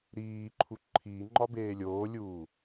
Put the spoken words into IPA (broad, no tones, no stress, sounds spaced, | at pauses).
ɾ iː ǃʰ u ǃʰ iː ŋ͡ǃ ɒ b eː lʲ oː lʲ uː